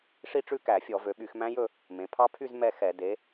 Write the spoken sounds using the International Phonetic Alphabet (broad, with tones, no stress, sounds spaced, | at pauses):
ʂ i˥˧ ʈ͡ʂ ʉ˥˧ k æ˧˩˧ fʲ ɔ˧˩˧ v ø˩˧ ɓ y˧˩˧ x m æ̃˦˥ j ɵ˥˧ | m ẽ˩˧ pʰ ɑ˦˥ pʰ y˥˧ z m ɛ˥˧ x ɛ˧˩˧ d e˩˧